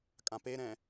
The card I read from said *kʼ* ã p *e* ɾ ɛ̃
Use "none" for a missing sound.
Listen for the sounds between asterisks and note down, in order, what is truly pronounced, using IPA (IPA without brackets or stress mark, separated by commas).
kʼ, e